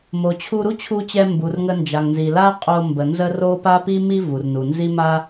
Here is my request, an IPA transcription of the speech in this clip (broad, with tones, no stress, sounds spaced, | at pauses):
m o˩ t͡ɕʰ u˧ ɾ u˥ t͡ɕʰ u˧ t͡ɕ ɛ˧ m b u˩ r ŋ ə˧ n d͡ʒ a˩ ŋ n z i˩ l a˥ qʼ o˧ m b ə˩ n z ə˥ r o˥ p a˥ p i˥ m i˥ v u˩ r n u˩ n z i˥ m a˥